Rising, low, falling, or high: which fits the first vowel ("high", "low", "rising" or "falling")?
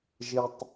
low